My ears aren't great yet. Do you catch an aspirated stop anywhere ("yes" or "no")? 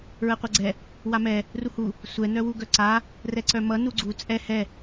no